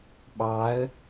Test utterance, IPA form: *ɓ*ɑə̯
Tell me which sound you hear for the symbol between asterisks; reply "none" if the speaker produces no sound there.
ɓ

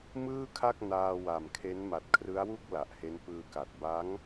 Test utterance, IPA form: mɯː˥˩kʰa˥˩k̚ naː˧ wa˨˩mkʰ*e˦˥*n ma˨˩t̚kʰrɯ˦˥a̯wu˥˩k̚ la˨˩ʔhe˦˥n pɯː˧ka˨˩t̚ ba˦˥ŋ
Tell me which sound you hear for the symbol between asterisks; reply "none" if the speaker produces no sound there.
e˦˥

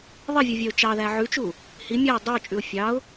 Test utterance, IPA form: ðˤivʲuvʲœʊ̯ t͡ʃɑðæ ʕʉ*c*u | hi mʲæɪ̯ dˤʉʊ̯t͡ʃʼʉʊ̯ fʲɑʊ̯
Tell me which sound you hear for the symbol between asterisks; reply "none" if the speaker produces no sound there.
t͡ʃ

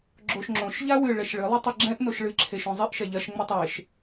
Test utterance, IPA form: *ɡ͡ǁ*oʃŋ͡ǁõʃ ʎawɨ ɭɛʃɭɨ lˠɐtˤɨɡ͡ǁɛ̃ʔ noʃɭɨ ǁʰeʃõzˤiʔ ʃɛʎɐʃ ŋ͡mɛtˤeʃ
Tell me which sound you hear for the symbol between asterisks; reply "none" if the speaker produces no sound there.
ɡ͡ǁ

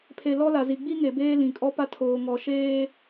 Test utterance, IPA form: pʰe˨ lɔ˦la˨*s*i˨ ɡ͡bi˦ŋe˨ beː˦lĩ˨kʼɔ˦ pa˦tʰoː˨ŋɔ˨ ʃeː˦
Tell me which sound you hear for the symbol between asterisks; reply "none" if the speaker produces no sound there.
z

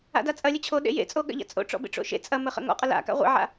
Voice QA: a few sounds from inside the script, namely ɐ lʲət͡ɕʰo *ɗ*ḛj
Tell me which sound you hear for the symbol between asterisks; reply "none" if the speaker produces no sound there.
ɗ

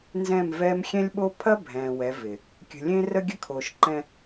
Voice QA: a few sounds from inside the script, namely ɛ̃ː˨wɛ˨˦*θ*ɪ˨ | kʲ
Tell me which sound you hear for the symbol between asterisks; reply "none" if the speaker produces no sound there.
v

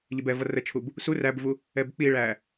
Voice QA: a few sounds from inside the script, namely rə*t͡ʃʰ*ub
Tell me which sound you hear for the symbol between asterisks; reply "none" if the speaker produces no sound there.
t͡ʃʰ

